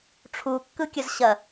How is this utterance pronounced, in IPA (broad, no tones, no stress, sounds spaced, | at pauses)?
ʈ͡ʂʰ u kː ɯ kʲ ɐ z ɕ ɐ